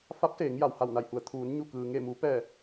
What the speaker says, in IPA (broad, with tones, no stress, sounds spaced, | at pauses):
f a˧˥ p̚ s eː˩˧ ŋ j a˩ w h a˧˩ w n a˧˩ j h u˩˧ ə̯ t̪ʰ uː˩˧ n ɲ u˧˩ k ɯː˩ ŋ e˧˩ m u˩˧ p ɛː˧˩